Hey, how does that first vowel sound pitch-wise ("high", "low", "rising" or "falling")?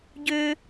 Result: high